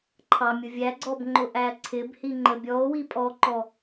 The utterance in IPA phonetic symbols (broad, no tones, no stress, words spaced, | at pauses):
ǃʰɑmʲʊ vʲæɡ͡ǀɔb ŋ͡ǃʊʔæǀʰɪbhi ŋ͡ǃəbʲɔo̯wi pʼɔǃɔ